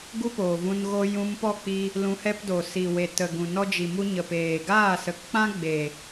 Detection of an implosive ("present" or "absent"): absent